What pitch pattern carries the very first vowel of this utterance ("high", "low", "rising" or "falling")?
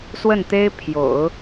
falling